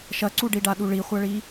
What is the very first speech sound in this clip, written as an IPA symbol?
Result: ʃ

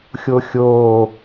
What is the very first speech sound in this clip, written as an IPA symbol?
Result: xʲ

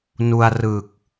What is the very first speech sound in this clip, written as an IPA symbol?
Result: n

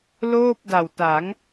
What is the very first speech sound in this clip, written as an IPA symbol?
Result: l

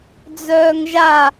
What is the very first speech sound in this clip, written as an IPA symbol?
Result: d͡z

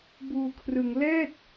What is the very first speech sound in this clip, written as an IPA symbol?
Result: b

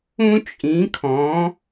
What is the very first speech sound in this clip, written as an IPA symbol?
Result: ũ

